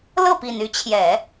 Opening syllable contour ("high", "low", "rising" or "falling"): falling